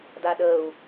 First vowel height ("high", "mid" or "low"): low